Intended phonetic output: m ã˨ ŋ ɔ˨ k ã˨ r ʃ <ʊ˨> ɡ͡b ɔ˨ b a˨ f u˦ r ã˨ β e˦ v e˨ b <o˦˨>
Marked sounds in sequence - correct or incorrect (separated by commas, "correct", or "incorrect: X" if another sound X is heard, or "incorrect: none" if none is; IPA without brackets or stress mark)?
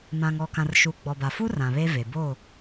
incorrect: u˨, correct